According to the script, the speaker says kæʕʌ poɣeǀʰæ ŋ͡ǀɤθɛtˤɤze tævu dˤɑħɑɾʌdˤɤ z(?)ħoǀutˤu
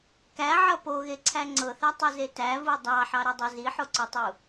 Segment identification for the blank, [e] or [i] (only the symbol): i